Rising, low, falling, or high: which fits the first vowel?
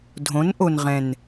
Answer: rising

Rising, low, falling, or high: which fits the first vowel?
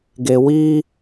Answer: low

